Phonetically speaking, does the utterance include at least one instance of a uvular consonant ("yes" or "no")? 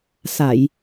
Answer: no